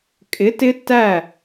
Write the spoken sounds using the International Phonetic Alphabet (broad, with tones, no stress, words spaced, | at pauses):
kʼɪ˨˥ tɪ˦˥ tæ˥˩